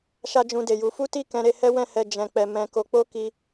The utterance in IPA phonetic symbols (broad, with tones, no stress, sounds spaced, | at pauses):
ʃ a˦ d͡ʒ ũ˧ d e˨ j u˧ f u˦ t i˦˨ k ɛ̃˧ ɾ e˧ h ɛ˦ w ɛ̃˦˨ h ɛ˧ d͡ʒ ɛ̃˨ k͡p ɛ˨ m ɛ̃˨˦ k o˧ k͡p o˦ k i˧